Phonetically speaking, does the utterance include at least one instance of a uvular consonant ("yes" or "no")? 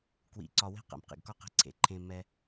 yes